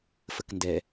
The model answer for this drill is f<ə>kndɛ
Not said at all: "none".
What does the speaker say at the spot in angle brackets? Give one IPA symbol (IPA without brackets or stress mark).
ə